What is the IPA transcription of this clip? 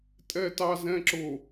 tʼɛtɑzɛ̃ǁʊ

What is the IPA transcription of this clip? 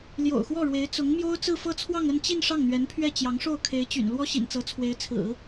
ljo̰˨˩ʊ̯xwɔ˥˩ɻwe˧˥ɪ̯ t͡sʊ˧˥ŋmjo˥ʊ̯ t͡sɹ̩˥˧fɤ˥˧t͡sʰwɑ˥˧ŋ ə˥˧nt͡ɕi˥˧n ʂɑ˥˩ŋn̪ɥɛ˧˥npʰɥɛ˥˩ t͡ɕjɑ˧˥ŋʂo˥˩ʊ̯kʰe˧˥ɪ̯t͡ɕy̰˨˩n lwɔ˥ɕḭ˨˩nt͡sɤ˧˥ t͡sʰwe˧˥ɪ̯t͡sʰɹ̩˨˩˦

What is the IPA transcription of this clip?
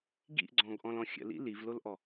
ɡḭʔ ɡ͡ǀɔ̃ɡʔɔ̃lɔ̃xʲə̰ lḭlivlolʔɔ

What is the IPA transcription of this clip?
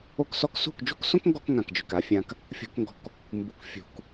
o˦ksɔ˦k sṳ˦˨kd͡ʒṳ˦ksõ˦kŋɡɔ˧k ŋã˨kd͡ʒʏ˨ka˧fʲã˧k | fʲo̤˧kŋɡɔ̤˧k | mbu˨kfʲṳ˨k

